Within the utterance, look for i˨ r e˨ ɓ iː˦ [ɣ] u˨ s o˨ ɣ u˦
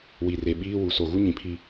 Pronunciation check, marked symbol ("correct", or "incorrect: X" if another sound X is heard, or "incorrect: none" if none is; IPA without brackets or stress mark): incorrect: w